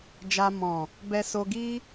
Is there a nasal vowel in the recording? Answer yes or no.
yes